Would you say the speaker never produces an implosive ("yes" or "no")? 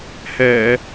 yes